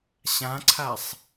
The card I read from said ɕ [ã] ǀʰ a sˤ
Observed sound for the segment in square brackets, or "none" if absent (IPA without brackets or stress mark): ã